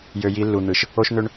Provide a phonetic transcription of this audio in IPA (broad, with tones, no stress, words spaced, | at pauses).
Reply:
jø˨ji˨˦lːu˨n̪ɯ˨ʃ | o˦ʃn̪ø˦ɳ